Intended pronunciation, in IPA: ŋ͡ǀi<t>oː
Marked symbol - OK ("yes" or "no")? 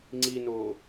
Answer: no